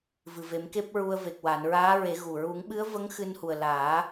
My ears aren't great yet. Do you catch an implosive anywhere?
yes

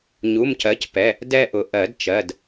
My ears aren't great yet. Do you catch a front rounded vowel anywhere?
no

